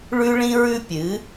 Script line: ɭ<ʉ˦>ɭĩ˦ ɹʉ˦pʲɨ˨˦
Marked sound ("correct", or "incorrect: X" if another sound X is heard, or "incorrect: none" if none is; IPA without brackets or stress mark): correct